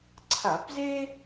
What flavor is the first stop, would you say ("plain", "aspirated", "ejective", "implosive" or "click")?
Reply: click